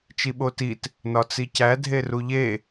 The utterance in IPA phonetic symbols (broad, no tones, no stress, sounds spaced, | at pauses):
t͡ʃ i ɓ o t i t | n ɒ t͡s i c æ dʱ e r u ʎ e